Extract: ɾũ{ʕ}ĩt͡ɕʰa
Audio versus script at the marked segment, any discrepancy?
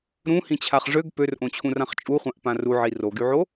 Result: yes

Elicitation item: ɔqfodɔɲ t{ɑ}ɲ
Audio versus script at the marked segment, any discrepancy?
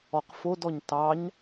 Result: no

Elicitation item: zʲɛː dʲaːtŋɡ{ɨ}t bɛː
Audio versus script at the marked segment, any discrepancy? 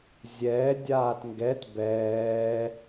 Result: yes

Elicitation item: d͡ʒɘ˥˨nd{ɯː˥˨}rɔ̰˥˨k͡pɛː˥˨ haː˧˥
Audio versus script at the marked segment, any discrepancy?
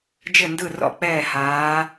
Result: yes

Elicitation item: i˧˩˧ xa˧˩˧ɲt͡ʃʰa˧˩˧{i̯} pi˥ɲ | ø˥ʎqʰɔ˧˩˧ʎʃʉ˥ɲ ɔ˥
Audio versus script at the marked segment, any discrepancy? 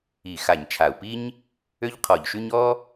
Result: yes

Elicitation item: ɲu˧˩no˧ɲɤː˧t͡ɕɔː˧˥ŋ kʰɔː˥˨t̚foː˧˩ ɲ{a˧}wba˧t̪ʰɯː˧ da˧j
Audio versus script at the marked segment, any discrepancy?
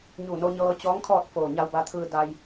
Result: no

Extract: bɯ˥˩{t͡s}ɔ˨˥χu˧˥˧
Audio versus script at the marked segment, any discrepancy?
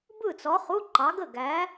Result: no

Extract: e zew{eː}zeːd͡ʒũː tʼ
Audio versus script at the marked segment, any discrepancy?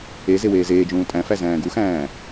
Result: no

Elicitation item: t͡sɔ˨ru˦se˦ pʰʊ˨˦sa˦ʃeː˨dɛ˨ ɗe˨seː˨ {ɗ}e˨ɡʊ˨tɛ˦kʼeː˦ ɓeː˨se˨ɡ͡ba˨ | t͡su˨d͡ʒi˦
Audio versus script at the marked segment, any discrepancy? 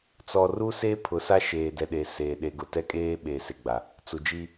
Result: no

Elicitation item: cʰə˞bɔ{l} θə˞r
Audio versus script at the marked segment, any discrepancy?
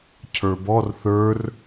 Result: yes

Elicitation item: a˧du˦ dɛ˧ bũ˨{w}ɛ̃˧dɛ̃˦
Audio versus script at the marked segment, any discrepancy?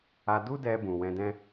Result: no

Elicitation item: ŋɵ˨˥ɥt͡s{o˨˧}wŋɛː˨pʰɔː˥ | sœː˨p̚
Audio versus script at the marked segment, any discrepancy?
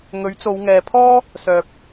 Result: no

